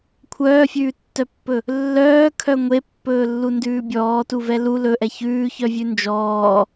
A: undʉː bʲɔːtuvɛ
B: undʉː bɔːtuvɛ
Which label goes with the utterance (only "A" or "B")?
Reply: A